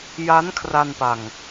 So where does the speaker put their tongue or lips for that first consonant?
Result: palate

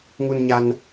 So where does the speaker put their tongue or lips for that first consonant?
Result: velum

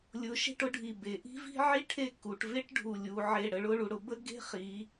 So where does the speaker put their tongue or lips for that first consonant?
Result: tongue tip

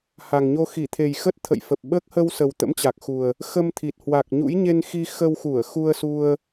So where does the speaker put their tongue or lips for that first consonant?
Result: throat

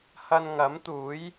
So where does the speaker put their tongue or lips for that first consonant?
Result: throat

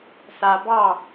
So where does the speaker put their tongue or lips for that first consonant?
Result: tongue tip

